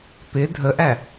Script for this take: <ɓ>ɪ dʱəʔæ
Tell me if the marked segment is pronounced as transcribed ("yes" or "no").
no